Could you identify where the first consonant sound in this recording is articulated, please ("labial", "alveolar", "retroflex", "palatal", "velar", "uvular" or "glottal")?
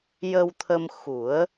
palatal